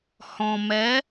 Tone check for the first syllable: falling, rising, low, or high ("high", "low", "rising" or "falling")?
low